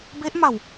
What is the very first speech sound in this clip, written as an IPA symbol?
b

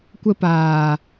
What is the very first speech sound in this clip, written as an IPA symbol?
kʷ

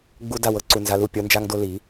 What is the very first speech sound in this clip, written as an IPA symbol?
ɡ͡b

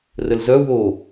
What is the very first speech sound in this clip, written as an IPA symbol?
r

